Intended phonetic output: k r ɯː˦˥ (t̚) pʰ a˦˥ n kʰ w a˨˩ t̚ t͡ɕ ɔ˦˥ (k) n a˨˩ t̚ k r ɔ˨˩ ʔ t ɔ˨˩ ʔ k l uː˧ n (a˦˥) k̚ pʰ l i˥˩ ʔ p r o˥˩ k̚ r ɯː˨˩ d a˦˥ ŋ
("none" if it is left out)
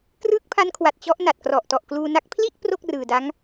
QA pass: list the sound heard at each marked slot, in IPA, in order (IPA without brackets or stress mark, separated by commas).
k̚, ʔ, a˦˥